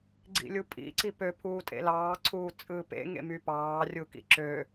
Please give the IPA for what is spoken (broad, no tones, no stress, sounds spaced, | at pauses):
ɡ͡ǀ ḭ lʲ u pʼ ḭ ǀ i p ø pʰ uː tʼ ḛ l ɑː ǀʰ uː t͡sʼ ɯː p ḛ ŋ ḛ m y p ɑː rʲ u k ḭ ǁ ø